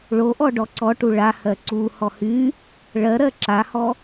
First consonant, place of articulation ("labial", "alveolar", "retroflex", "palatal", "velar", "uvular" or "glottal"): retroflex